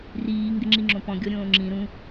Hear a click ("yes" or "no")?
yes